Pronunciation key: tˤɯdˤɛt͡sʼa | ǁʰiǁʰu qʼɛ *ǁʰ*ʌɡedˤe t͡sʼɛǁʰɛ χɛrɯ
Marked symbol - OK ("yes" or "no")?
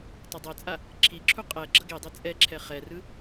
no